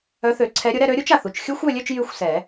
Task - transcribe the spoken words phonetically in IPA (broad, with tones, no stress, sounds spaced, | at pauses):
œ˨˥ θ ø˨˩˦ ǀʰ ɛ˨˥ ɾʲ ʊ˨˥ ɾ ɛ˥˧ ɾ ø˦˥ ɾʲ u˦˥ t͡ʃ a˩ θ u˩ t͡ʃ xʲ u˦˥ xʷ ø˥˧ lʲ ø˥˧ t͡ʃ j y˥˧ xʷ s ɛ˨˩˦